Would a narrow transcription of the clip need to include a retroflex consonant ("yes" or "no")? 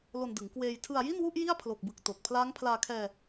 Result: no